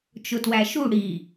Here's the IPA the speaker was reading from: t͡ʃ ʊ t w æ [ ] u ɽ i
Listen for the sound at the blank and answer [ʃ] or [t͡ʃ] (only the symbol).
ʃ